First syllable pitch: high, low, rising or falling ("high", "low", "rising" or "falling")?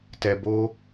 low